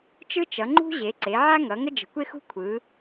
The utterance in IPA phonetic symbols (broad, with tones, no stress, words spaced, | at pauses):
t͡ʃɯ˦t͡ʃʌ˩˧ŋ͡ǃṳ˦ʑe˩˧ ǀe˩˧ʕa˦ŋʌ˩˧ ŋə˦d͡ʒə̤˩˧kʷe˦xṳ˦ kʷʰɯ˩˧